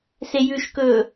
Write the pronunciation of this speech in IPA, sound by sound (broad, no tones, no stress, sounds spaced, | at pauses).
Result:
s e j ʉ ʃ k ɵː